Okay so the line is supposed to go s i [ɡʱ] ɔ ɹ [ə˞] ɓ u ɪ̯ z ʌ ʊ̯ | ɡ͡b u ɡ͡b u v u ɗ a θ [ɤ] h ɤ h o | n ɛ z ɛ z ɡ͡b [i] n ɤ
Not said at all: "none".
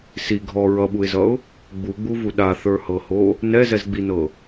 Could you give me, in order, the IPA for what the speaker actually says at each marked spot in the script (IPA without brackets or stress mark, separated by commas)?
ɡʱ, ʌ, ə˞, i